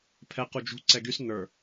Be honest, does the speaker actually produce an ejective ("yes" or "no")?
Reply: no